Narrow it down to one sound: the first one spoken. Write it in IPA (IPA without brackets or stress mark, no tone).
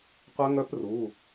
qʷ